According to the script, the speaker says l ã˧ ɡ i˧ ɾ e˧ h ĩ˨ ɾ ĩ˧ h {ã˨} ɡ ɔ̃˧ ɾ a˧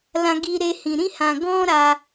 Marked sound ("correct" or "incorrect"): correct